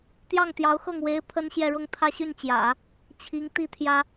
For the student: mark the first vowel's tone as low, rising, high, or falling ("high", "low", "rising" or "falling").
falling